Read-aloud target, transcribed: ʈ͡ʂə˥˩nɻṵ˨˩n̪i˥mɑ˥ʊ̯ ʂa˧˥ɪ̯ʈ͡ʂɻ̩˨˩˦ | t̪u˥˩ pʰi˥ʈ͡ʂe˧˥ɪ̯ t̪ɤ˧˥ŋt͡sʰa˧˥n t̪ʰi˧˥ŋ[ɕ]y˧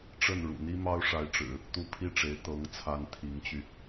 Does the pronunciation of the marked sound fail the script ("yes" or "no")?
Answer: yes